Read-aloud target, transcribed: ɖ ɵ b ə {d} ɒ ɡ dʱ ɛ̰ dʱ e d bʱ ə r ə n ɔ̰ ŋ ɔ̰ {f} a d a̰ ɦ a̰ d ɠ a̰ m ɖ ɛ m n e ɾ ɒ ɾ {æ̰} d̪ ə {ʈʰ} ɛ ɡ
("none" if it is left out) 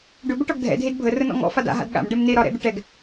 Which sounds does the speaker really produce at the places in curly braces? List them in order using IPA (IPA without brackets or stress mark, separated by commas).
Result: ʈ, f, ɛ̰, ʈ